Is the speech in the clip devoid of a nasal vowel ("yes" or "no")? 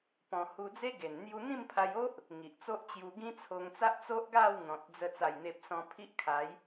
no